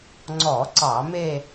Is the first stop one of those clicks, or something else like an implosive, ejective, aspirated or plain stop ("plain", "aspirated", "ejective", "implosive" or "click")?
click